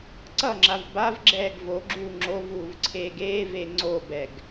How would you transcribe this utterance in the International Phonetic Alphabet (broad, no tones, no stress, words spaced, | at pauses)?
ǀʌŋ͡ǁav bavɡ͡ǁɛːɡ voɡ͡ǁuː ŋ͡ǁovuːv ǀʰeːɡeːve ŋ͡ǀobɛɡ